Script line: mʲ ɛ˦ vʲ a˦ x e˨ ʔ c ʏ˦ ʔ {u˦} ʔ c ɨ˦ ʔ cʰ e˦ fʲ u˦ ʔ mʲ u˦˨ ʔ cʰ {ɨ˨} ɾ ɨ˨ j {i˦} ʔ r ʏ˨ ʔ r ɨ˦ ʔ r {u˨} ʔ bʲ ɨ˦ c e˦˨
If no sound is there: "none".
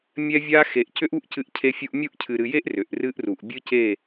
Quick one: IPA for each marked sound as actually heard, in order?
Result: u˦, ɨ˨, e˦, u˨

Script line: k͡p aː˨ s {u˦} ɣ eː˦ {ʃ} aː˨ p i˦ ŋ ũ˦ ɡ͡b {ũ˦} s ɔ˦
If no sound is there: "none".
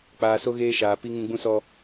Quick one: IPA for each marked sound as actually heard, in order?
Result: o˦, ʃ, ũ˦

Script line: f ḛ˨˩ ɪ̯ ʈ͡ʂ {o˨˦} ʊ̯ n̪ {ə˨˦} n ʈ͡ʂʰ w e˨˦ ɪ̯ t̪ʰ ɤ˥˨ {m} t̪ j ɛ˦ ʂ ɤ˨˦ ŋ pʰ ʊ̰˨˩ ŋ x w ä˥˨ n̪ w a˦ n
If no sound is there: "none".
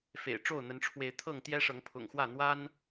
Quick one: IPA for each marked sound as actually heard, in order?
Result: o˥˨, ə˨˦, ŋ

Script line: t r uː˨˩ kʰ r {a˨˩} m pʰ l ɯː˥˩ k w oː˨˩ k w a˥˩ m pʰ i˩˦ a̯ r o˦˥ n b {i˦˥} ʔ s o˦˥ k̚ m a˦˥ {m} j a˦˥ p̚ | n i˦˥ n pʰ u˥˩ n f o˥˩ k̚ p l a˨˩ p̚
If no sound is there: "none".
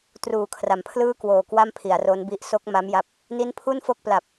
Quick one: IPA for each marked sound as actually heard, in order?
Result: a˩˦, i˦˥, m

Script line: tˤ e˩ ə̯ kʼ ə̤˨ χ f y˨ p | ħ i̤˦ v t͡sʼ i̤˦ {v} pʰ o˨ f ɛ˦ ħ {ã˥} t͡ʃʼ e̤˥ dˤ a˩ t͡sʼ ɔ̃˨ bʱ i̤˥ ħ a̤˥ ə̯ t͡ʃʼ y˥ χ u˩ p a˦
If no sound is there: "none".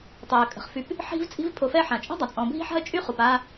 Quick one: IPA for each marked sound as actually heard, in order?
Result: v, ã˩

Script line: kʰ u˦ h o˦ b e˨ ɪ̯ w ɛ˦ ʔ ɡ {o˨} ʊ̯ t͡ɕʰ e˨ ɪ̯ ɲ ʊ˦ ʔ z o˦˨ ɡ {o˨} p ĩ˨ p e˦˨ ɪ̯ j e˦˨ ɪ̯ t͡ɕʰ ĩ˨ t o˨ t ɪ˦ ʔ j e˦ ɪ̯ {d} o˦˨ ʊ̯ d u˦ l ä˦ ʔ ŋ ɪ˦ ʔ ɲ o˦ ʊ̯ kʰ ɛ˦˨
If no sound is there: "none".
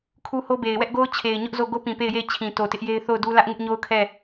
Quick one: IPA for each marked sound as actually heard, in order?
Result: o˦, o˦, θ

